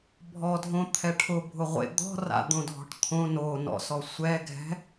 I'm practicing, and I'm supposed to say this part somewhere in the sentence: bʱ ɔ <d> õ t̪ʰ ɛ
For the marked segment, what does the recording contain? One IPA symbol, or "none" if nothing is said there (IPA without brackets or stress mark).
dʱ